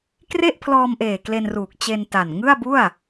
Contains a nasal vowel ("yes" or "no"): no